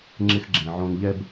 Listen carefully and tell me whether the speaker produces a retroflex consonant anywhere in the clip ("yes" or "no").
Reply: no